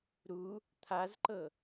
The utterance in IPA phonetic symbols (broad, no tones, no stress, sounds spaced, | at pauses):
ɾ u | t̪ʰ a z ǃ ɤ